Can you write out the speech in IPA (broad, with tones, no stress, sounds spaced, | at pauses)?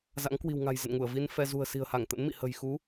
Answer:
z a̰˧˥ ŋ k w i̤˨˩ w ŋ a̤˨˩ j z ə̰˧˨ n ŋ u˧˩ ə̯ v i˧ n f ɛ˧ z ṳ˨˩ ə̯ s i̤˨˩ ə̯ h a˧˩ ŋ t̪ ə̰˧˥ n m ḭ˧˨ h ə̤˨˩ j x u˨˦